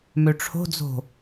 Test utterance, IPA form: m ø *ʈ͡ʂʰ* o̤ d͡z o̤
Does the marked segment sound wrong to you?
no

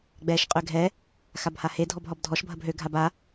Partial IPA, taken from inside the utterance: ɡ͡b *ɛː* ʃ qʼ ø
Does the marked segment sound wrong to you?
no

